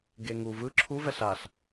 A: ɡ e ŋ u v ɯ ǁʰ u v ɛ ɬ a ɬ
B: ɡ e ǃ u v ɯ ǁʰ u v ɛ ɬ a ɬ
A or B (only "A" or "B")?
A